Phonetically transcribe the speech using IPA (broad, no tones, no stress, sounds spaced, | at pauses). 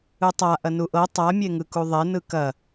ɯ tˤ a ʔ ɐ n u ʔ ɤ tˤ a mʲ e ŋ ɯ k u ðˤ e n ɯ k ɐ